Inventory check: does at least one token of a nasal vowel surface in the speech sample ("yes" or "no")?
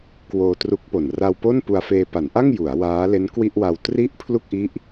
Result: no